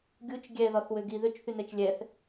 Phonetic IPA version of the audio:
ɡʲ u t͡ʃ ɡʲ ɛ ð ɒ θ w ø ɡ i ð ø t͡ʃ θ y n ɛ t͡ʃ lʲ ɛ θ

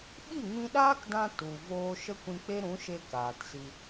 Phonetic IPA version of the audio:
ɓ i˦˨ ŋ ĩ˧ ɗ aː˦ k d ã˧ t u˨ v oː˧ ʃ ə˦ kʷ ĩ˧ k͡p e˦ ɾ ũ˨˦ ʃ e˧ k aː˨ t s i˧

